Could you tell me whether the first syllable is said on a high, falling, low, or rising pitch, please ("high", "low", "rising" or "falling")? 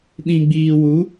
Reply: low